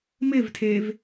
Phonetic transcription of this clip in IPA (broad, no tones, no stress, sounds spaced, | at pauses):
m ɪ v tʰ e v